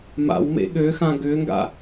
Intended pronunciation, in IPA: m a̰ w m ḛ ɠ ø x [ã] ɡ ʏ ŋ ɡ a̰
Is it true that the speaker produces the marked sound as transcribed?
yes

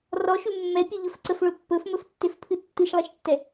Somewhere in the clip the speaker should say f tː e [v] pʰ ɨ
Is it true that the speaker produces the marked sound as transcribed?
no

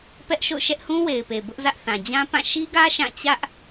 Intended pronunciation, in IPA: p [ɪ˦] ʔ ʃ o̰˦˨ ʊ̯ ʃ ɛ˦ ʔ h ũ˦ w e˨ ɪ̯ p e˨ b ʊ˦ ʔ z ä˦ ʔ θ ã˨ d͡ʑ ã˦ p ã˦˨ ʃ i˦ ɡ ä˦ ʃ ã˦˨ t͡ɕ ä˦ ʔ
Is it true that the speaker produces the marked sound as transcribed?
no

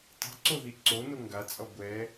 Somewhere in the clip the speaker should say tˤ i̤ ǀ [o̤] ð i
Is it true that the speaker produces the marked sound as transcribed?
no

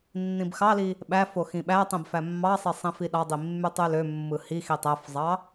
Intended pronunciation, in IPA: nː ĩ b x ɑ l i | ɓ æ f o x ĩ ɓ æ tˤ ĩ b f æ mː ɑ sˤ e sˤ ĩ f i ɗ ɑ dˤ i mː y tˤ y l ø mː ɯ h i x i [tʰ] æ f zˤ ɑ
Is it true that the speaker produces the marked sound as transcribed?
no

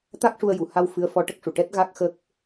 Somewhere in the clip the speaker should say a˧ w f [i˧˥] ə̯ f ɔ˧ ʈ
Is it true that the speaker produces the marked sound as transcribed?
no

